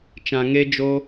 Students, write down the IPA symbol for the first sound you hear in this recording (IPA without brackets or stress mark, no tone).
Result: t͡ʃ